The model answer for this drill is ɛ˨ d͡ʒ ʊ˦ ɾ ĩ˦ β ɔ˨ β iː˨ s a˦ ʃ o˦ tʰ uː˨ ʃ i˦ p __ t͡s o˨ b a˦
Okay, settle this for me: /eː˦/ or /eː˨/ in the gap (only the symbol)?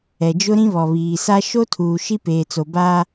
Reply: eː˨